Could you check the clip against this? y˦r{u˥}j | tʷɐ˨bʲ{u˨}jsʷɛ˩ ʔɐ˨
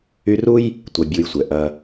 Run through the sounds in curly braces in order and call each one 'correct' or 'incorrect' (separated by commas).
correct, correct